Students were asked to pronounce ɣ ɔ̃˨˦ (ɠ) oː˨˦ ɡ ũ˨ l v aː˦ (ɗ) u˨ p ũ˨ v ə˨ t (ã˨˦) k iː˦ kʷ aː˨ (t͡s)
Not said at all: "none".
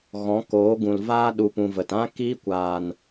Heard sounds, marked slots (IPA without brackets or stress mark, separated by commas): k, ɗ, ã˦, n